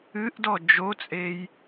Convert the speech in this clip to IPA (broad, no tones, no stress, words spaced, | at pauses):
ɨʔdɔ d͡ʒot͡sʼej